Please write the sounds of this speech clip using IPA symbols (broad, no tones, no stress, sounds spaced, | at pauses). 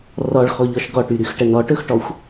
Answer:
r ɔ ɭ x ɔ ʎ ɔ ʃ ɡ ɔ ʈ y ɾ y x ʈ ə n ɔ ʈ ɵ x ʈ ɔ xʷ